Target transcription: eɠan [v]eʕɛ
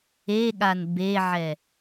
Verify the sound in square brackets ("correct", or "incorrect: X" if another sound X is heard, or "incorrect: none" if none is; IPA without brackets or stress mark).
incorrect: b